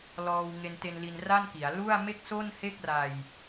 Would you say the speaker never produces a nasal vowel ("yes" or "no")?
yes